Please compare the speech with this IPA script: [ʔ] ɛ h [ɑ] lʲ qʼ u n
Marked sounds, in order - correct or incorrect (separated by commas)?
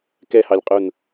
incorrect, correct